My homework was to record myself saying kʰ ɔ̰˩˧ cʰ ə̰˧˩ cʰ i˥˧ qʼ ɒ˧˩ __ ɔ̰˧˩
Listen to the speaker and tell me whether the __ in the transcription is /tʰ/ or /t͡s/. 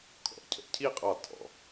tʰ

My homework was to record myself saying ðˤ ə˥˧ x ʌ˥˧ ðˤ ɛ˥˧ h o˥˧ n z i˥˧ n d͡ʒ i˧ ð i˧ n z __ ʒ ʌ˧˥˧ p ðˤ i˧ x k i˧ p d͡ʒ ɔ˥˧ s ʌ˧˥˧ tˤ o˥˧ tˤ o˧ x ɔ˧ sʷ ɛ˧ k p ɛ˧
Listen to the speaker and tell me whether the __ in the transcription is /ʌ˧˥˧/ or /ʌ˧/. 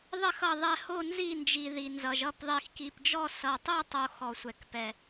ʌ˧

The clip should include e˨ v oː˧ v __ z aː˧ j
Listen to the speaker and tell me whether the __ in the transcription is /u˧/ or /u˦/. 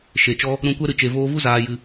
u˦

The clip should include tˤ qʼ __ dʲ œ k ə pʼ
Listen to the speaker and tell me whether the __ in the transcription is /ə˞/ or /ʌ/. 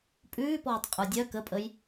ə˞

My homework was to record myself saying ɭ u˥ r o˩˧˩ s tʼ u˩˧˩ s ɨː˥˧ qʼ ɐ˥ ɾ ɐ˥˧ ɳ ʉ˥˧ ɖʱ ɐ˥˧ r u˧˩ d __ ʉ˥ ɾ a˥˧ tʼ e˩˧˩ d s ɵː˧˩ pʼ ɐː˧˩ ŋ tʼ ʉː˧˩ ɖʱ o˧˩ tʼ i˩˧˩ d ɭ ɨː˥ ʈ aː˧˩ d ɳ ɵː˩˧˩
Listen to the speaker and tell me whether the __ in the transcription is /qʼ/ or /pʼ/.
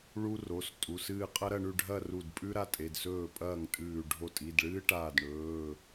pʼ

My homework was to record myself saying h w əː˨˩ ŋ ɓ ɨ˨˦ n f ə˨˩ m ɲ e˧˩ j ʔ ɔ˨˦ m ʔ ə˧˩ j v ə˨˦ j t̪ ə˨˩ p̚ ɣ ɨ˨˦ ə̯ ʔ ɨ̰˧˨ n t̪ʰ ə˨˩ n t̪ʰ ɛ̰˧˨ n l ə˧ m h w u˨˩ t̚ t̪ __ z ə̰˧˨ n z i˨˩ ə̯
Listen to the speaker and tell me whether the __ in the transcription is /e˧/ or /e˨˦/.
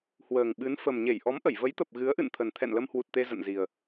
e˧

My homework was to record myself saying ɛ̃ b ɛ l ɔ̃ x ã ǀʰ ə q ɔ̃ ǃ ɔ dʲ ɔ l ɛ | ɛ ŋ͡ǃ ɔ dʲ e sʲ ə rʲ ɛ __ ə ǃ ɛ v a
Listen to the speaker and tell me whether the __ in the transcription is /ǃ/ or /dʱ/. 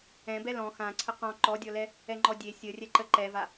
ǃ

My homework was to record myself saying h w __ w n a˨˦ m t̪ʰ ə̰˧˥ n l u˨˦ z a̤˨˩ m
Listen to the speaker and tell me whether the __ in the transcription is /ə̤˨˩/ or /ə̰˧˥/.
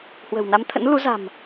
ə̤˨˩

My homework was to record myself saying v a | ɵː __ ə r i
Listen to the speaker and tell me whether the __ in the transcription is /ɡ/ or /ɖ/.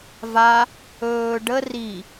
ɖ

